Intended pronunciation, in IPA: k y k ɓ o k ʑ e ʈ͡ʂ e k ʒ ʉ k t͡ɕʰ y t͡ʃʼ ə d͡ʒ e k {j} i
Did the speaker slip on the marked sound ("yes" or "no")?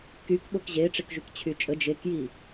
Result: no